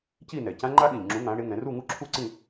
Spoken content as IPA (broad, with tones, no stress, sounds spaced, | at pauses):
c i˥˨ n ɛ˨˩ c ã˦˥ ŋ͡ǃ a˦˥ ɠ ĩ˨˩ ʎ ŋ͡ǁ ũ˨˥ ŋ ã˩˧ ɽ e˩˧ ŋ ɛ̃˩˧ r u˥˨ ŋ u˦˥ ǁʰ u˥˨ ǀ ĩ˥˨